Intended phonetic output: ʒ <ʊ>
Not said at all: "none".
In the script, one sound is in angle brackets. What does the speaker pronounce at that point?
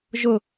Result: ʊ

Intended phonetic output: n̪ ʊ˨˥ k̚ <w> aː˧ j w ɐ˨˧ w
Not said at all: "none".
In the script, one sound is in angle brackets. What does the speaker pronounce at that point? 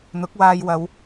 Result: w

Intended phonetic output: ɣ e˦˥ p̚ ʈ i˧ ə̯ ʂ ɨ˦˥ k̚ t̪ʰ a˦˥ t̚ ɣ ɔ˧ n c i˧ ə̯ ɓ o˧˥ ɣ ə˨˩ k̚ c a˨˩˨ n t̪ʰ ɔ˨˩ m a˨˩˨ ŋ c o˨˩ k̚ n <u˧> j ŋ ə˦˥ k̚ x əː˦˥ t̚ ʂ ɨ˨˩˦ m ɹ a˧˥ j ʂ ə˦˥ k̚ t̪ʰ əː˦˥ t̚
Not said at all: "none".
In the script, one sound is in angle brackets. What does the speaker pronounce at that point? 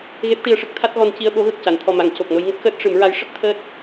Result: o˧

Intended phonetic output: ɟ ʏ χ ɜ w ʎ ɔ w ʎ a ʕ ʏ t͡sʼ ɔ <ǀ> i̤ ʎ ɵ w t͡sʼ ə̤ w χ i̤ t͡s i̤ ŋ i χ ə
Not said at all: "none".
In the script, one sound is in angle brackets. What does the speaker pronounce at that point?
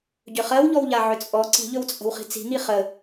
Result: ǀ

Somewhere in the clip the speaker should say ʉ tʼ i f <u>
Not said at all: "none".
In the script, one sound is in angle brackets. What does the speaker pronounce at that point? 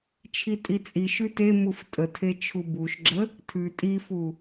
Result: u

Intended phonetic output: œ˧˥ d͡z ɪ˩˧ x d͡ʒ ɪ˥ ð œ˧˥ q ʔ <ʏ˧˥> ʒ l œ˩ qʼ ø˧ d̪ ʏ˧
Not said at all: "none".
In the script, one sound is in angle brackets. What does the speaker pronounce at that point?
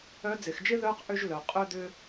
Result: ʏ˧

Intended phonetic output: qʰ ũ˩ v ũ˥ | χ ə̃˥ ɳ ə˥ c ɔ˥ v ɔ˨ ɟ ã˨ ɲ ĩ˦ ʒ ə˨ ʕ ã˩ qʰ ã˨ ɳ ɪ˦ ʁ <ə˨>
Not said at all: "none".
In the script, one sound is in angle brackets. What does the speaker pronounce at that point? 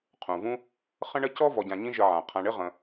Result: ə̃˨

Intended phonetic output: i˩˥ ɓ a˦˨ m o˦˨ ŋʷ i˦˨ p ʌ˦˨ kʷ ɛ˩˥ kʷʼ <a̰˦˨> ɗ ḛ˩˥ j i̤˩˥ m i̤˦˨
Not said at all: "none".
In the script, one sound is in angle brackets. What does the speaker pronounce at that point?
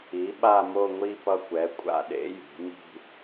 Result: a̰˦˨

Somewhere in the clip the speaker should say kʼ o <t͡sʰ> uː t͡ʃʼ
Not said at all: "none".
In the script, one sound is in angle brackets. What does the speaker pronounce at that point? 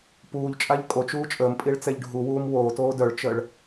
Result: t͡ʃ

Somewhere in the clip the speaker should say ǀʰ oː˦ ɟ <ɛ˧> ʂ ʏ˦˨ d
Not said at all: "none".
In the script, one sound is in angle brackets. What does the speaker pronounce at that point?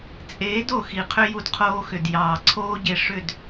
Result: e˧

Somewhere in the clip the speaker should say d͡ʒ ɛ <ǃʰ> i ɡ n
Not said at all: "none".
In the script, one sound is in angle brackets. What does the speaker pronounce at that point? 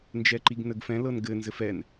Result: ǃ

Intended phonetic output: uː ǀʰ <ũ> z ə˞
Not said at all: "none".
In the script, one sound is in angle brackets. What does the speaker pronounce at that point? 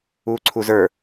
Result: u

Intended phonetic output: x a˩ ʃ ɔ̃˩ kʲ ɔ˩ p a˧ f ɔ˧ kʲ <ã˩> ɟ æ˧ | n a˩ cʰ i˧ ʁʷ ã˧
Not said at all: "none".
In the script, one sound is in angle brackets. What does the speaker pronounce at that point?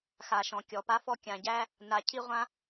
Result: ã˩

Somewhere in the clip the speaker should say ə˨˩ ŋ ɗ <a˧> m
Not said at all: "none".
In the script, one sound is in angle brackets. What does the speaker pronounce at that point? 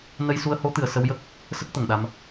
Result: a˧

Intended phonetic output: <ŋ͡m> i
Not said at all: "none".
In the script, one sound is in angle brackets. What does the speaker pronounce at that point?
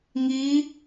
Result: ŋ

